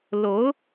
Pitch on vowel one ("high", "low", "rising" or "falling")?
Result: rising